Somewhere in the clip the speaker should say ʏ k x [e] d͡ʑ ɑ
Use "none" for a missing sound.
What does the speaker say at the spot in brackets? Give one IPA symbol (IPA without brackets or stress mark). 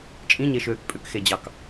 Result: e